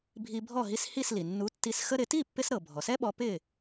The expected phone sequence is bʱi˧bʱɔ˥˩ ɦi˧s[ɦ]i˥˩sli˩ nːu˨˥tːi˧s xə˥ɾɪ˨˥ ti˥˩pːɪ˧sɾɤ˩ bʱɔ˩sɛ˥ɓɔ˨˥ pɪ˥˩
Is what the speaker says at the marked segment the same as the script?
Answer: no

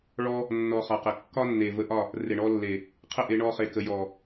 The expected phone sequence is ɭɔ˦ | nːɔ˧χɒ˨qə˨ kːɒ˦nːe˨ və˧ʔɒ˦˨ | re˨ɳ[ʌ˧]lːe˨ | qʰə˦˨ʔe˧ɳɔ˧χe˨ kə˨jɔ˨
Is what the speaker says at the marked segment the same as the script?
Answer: no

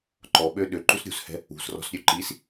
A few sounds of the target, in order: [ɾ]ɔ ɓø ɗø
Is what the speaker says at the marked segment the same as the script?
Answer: no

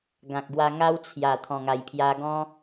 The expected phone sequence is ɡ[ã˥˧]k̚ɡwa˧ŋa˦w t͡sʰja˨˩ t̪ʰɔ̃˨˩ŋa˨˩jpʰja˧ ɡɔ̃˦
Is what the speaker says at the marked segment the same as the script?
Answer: no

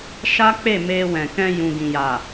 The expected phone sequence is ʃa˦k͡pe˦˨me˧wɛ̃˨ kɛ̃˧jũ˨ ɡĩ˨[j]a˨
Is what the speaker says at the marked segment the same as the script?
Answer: yes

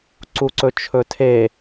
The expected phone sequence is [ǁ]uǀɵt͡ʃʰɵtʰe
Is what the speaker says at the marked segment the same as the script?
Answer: no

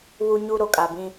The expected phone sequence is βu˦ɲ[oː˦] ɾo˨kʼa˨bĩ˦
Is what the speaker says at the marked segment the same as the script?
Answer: no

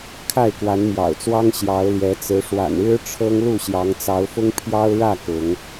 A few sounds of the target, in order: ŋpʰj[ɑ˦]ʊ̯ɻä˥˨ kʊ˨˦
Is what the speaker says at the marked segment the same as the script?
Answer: yes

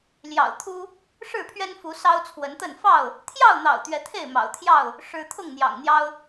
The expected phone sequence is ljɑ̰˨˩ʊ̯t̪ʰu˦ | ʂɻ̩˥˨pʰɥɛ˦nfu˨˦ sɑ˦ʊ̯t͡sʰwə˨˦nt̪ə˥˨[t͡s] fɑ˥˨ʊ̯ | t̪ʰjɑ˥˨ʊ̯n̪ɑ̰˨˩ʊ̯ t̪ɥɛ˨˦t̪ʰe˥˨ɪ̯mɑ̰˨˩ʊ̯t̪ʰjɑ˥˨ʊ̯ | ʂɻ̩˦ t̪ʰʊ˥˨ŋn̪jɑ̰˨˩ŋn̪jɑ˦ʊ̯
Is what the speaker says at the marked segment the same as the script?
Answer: no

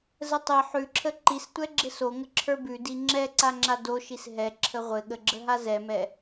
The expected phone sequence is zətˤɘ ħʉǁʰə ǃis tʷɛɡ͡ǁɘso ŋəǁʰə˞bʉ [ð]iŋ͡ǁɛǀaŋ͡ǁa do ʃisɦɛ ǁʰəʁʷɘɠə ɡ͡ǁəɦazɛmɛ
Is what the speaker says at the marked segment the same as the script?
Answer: no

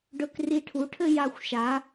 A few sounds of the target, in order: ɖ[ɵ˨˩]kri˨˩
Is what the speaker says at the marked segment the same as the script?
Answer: yes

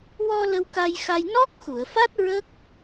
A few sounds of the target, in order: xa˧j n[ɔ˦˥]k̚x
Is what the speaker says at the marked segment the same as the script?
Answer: yes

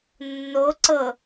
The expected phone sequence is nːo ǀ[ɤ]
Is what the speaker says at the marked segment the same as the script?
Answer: yes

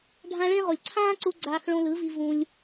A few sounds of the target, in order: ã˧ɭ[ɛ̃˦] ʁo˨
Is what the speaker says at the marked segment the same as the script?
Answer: no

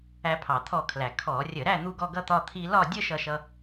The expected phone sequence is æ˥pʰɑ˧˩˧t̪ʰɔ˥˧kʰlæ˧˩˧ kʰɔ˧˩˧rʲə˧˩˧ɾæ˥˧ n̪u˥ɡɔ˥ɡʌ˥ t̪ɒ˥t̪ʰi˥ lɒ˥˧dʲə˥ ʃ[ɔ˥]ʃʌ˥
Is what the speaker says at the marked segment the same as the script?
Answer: no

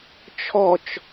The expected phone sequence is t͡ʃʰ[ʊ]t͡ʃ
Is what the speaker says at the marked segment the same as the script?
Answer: no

